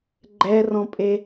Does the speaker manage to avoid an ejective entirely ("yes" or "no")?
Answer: no